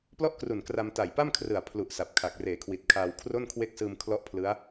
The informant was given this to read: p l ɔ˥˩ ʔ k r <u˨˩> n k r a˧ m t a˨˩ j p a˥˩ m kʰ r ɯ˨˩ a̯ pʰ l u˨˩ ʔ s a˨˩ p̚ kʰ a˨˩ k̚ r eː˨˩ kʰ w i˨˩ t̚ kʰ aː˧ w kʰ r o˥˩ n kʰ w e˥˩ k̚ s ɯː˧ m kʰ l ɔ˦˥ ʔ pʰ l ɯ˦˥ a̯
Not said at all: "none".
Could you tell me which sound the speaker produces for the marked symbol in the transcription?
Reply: u˨˩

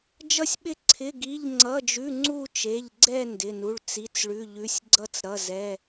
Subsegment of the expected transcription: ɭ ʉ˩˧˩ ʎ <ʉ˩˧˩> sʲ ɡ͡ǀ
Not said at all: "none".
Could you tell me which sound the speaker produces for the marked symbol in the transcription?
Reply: ʉ˩˧˩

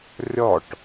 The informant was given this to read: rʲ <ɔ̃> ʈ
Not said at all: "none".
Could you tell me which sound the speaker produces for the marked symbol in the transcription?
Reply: ɔ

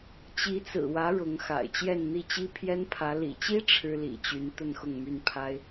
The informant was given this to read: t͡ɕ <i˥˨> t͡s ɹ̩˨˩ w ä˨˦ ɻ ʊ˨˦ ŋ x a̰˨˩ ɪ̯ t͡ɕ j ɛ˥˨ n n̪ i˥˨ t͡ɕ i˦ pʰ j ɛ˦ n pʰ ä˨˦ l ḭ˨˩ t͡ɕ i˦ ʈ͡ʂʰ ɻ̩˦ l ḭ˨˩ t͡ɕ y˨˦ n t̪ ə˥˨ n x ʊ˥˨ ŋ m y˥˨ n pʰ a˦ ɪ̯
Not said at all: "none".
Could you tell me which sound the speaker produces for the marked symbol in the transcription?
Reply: i˨˦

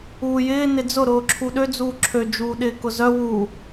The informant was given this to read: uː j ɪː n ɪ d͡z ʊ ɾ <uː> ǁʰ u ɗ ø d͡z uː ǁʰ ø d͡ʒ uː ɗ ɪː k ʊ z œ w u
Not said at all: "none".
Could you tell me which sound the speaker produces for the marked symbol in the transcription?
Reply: ʊː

